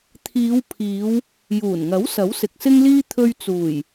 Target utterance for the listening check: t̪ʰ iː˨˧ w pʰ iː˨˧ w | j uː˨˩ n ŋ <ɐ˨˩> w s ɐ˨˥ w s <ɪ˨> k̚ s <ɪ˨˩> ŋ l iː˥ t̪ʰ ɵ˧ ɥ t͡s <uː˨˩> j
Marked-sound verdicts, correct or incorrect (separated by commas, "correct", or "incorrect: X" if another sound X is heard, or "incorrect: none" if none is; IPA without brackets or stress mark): incorrect: ɐ˨˥, correct, incorrect: ɪ˥, correct